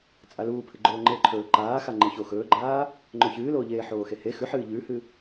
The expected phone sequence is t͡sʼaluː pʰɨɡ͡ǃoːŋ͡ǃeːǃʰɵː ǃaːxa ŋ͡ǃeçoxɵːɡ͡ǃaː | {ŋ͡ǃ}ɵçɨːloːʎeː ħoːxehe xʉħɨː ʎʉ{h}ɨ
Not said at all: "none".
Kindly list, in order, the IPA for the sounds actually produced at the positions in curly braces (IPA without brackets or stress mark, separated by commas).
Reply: ŋ͡ǃ, h